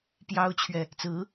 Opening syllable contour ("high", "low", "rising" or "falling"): high